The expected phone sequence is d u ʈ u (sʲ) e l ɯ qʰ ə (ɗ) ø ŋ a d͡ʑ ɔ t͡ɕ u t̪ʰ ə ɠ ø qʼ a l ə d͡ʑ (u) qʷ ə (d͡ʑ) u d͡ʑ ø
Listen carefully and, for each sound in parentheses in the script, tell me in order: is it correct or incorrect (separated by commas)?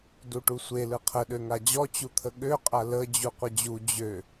incorrect, correct, correct, correct